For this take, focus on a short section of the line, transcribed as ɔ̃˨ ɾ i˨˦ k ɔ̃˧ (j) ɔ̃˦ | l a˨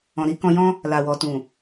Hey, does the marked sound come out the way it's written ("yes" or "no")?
yes